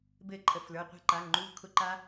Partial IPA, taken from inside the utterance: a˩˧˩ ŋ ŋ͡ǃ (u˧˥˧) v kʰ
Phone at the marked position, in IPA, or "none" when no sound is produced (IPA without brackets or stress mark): u˧˥˧